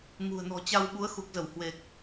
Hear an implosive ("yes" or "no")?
yes